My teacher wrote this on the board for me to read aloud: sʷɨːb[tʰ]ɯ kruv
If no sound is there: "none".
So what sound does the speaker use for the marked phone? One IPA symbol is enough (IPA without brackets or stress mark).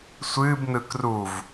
n